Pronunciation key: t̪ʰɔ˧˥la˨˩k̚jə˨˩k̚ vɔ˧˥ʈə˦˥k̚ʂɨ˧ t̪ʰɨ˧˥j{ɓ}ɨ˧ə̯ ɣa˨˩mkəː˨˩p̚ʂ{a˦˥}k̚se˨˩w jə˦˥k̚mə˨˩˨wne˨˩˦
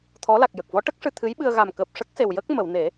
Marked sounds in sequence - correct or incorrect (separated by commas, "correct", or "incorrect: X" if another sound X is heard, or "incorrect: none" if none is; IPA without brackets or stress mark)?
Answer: correct, incorrect: ə˦˥